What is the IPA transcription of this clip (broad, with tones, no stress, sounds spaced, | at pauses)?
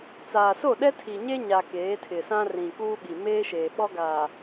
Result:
t͡s aː˨ s o˦˨ ɗ ɛ˦ tʰ i˨ ɲ e˦ ɲ a˨ k eː˨˦ tʰ ɪ˨ s ã˦ r ĩ˨ k uː˦ ɓ i˨ m eː˦ ʃ eː˨ ɓ ɔ˦ ɡ aː˨